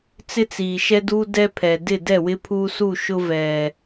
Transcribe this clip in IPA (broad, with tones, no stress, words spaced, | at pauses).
t͡sɪ˦t͡siː˨ʃɛ˦duː˦ dɛ˦pʰɛ˨ dɪ˦˨dɛ˦˨wɪ˦ pʰuː˦su˦˨ ʃʊ˦ vɛ˨